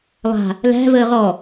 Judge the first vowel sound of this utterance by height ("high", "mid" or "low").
low